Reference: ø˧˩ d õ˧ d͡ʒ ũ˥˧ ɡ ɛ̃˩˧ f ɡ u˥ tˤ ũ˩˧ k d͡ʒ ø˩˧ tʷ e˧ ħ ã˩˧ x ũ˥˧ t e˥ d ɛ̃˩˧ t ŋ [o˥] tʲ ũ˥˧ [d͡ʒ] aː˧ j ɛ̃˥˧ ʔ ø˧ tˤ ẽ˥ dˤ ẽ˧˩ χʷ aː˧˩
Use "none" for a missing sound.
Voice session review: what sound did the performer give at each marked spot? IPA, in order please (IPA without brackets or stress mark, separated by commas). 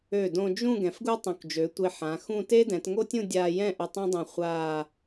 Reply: o˥, dʲ